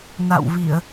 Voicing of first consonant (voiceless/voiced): voiced